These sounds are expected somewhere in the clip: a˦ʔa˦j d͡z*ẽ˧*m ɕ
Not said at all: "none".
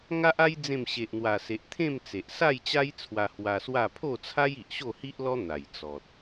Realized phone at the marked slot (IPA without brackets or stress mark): ẽ˥˧